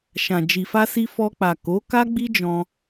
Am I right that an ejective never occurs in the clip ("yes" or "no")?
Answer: yes